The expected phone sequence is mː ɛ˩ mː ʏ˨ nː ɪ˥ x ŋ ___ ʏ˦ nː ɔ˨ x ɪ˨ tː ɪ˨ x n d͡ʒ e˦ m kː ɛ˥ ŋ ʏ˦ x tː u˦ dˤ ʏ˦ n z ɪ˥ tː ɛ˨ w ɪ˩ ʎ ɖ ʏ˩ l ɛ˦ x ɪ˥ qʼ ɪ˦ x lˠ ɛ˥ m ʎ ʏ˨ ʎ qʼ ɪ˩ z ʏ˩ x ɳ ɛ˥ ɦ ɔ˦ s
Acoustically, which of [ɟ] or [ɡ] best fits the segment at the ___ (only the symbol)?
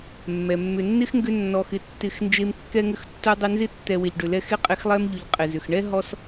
ɡ